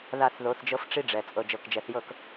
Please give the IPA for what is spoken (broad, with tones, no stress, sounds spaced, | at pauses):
ð a˦˨ θ ð o˨˦ θ d͡ʒ ɤ˦ f ʈ͡ʂ i˦ ɖ͡ʐ ɛ˨ t͡sʼ ɤ˨ d͡ʒ ɤ˨ k d͡ʒ ɛ˨ θ j ɤ˦˨ k